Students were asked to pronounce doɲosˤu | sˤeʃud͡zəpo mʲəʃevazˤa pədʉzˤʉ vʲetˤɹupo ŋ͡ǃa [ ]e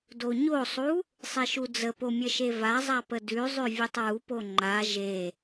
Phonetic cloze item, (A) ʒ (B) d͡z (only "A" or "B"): A